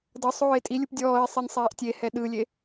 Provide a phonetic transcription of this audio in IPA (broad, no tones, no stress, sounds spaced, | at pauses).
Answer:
d ɤ sˤ oː e̯ tʼ i lʲ u p dʲ ɔː e̯ sˤ i nʲ sˤ ɛː ʔ tʲ e h ɛ ɗ ɯ lʲ e